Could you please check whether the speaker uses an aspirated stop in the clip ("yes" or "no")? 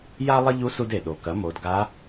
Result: no